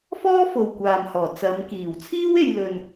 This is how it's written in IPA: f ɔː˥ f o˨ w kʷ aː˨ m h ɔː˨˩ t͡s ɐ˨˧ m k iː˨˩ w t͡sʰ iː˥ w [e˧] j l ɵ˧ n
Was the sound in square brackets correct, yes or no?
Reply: yes